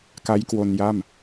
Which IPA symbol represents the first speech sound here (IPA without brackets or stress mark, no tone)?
k